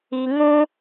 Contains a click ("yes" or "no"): no